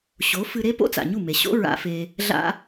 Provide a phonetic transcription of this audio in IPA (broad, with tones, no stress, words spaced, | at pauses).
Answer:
ɕo˨˦ fɨ˧ɾe˦ po̰˦t͡sa̰˨ɲu˦˨me˨ ɕo̰˦ ɹa̰˧fe˧ | ɮa̰˦